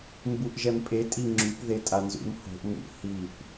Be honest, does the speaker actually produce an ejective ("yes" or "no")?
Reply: yes